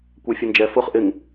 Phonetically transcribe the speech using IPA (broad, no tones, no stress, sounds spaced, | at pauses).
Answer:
kʷ ɛ fʲ ʊ n d͡ʒ ɛ f ʊ χ ʔ ɪ ŋ